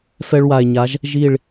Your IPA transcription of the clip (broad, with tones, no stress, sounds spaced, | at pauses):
f ɛ˦ ɭ w a˨ e̯ ɲ a˨˦ ʒ | ʒ i˦˨ ɭ